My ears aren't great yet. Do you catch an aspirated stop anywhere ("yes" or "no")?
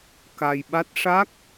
no